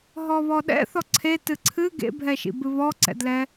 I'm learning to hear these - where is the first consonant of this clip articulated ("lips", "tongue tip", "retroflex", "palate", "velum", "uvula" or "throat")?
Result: throat